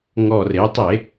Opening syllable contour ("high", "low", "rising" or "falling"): low